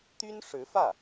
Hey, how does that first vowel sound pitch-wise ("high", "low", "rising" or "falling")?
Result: high